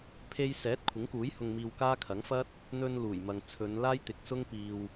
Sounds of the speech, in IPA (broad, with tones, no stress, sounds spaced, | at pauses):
pʰ e˧ j s ɛː˨˥ t̚ kʷʰ ɪ˨˥ ŋ k uː˨˥ j h ʊ˧ ŋ m iː˧ w k aː˥ kʰ ɐ˨˥ ŋ f ɐ˥ t̚ | n̪ ɵ˧ n l uː˨˩ j m ɐ˨ ŋ t͡sʰ ɵ˨˧ n l aː˥ j t̪ ɪ˨˥ k̚ s ʊ˥ ŋ p iː˧ w